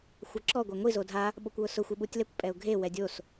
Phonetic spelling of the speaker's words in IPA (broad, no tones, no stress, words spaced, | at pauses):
xʷaǁɔ ɡʷaŋʷi zodʱa | ɓokʷwʊsʊ xʷɪɓutʲlɛkʷ pʼɛʊ̯ɡʱe wɛdʲos